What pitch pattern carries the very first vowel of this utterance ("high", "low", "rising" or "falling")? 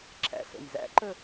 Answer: low